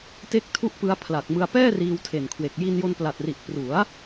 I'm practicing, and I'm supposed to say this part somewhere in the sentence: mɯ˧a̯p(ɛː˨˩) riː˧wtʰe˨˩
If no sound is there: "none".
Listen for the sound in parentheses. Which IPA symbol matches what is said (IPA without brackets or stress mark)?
ɛː˥˩